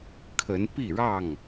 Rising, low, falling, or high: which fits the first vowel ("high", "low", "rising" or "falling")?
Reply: rising